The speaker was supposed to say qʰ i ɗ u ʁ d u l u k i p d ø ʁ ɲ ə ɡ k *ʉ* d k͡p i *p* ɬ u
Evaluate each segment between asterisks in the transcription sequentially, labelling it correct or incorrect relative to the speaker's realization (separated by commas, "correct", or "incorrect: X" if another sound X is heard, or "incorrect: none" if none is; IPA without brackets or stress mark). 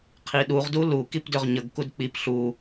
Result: incorrect: u, correct